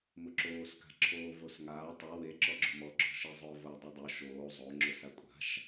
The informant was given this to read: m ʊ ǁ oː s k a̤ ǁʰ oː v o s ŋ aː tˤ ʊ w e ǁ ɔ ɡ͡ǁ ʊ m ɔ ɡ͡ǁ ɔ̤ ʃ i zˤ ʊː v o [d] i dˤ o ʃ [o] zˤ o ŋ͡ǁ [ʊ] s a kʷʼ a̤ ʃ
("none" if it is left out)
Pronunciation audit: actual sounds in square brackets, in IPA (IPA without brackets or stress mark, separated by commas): dˤ, oː, ʊ